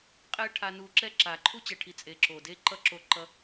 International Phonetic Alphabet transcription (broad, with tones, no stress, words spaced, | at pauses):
qʼɛ˦ ʈʰa˧nu˧ǁɛ˦ǁa˨ ǃʰu˦t͡ɕɛ˨ʈʰi˨ t͡sʼe˨ǁo˨ de˦˨ǃʌ˦ǁo˧ ǃʌ˧